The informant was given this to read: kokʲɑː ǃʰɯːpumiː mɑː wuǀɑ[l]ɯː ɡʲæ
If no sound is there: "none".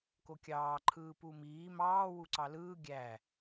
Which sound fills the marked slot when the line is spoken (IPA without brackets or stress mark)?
l